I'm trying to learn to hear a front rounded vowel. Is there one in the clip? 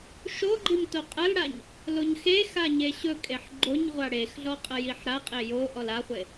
no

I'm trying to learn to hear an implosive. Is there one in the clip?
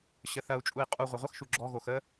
no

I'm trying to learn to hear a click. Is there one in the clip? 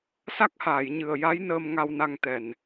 no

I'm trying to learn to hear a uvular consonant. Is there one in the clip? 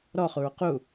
yes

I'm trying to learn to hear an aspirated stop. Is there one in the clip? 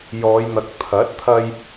yes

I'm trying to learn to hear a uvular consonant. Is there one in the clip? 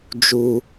no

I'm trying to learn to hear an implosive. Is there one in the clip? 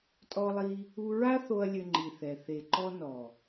no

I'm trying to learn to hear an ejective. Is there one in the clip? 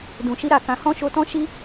no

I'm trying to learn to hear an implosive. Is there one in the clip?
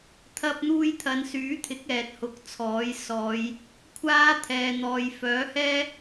no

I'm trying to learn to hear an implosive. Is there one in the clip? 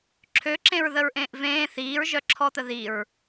no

